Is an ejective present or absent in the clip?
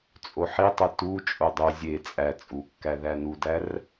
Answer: present